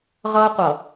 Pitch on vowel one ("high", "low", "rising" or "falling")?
high